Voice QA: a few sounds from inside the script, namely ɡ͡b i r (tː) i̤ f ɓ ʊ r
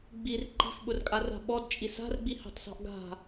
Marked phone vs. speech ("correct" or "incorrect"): incorrect